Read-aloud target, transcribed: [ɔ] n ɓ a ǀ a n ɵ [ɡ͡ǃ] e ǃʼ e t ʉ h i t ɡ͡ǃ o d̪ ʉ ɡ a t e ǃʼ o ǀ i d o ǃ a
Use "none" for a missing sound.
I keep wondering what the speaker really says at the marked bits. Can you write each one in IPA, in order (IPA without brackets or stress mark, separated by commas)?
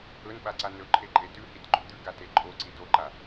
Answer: ɵ, ǃʰ